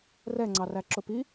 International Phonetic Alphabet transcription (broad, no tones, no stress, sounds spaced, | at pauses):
r ɛ ŋ͡ǀ ɑ r æ ǁ ʊ p i